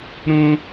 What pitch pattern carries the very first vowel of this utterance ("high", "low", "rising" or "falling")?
high